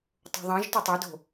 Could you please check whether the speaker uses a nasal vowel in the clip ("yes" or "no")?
yes